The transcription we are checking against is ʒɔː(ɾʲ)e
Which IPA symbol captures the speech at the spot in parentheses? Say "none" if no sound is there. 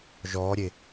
ɾʲ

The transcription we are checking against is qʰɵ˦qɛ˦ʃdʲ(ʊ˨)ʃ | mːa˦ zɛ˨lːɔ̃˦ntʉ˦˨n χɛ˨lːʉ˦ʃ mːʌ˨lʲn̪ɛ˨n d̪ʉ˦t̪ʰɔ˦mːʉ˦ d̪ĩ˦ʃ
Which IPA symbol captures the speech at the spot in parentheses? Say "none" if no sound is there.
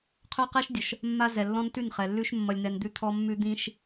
ʊ˨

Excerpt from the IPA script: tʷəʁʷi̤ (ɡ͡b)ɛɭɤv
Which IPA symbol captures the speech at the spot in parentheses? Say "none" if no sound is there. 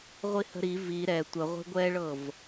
ɡʷ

